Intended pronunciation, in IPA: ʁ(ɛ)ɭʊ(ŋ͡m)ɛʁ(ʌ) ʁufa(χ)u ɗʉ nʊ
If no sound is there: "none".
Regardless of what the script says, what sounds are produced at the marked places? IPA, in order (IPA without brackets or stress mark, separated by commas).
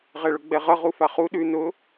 ɛ, ɡ͡b, ʌ, χ